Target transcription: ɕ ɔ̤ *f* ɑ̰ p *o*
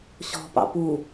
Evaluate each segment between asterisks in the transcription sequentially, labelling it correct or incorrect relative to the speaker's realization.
incorrect: p, incorrect: u

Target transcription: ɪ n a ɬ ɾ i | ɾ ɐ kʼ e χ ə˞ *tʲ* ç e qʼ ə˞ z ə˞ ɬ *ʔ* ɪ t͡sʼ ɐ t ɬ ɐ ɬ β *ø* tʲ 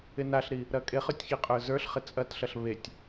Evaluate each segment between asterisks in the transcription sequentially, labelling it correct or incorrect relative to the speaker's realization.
correct, incorrect: χ, incorrect: e

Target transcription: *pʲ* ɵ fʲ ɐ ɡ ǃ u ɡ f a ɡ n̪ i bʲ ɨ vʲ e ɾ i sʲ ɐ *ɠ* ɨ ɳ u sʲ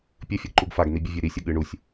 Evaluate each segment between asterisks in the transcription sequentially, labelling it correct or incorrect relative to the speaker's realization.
correct, correct

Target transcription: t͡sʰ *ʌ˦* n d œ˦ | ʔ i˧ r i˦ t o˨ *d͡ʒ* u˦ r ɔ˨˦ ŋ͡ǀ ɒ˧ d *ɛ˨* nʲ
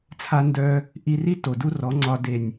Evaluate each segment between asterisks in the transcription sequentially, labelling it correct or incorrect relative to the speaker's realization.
incorrect: a˦, incorrect: d, incorrect: e˨

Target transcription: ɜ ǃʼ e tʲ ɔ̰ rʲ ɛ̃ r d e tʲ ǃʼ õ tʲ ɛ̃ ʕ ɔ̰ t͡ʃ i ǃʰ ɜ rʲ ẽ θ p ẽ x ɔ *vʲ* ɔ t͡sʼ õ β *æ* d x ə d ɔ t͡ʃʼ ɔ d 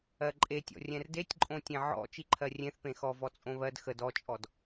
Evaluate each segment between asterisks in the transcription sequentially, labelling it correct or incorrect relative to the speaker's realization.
incorrect: v, incorrect: ɜ

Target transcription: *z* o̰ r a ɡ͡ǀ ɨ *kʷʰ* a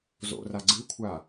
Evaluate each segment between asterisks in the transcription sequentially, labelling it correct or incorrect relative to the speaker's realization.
correct, correct

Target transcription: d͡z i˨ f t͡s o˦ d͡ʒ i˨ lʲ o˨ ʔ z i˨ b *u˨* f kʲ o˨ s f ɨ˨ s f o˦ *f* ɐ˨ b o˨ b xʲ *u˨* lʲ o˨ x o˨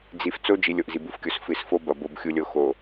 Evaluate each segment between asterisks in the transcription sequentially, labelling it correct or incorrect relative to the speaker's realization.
correct, incorrect: b, correct

